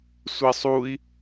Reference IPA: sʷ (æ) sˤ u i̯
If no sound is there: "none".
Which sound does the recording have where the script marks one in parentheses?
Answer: ɛ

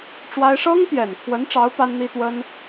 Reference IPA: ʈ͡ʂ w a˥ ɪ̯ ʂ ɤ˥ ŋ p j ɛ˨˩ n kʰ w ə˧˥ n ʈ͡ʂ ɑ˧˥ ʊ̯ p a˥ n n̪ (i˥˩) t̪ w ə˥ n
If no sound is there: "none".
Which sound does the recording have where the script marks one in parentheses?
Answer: i˥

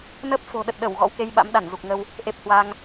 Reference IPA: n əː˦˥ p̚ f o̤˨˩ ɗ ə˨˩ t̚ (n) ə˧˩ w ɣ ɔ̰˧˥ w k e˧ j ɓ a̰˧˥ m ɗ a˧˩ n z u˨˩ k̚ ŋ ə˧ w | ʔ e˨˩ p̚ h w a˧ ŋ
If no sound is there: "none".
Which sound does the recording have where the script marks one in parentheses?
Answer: ɗ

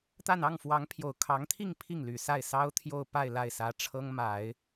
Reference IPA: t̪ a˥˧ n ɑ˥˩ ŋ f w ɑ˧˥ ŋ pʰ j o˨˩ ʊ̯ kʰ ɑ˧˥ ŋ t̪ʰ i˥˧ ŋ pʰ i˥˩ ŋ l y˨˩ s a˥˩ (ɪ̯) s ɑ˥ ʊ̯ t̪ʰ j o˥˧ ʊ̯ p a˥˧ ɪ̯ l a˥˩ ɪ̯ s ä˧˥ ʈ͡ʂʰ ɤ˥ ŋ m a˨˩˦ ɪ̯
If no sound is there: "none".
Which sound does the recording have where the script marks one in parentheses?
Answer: ɪ̯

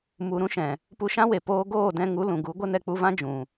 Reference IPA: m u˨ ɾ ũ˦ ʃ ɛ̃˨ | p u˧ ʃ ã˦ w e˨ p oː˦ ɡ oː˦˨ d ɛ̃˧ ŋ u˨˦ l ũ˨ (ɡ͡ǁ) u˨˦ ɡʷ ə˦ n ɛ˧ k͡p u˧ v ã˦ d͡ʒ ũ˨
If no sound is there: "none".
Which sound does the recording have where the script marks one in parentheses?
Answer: ɡ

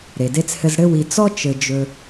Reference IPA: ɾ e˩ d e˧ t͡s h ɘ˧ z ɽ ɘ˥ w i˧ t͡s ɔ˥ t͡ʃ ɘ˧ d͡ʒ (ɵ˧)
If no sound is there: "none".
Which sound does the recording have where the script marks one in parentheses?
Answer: ɵ˧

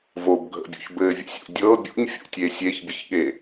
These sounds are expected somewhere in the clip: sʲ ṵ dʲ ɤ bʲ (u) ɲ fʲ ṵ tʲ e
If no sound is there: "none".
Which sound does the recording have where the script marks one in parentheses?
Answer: ṵ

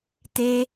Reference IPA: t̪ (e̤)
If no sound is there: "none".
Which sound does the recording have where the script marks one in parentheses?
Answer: e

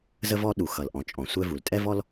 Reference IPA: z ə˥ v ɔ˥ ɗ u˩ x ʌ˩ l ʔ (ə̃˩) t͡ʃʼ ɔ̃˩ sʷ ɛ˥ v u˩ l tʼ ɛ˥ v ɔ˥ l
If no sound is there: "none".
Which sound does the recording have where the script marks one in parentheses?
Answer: ɔ̃˩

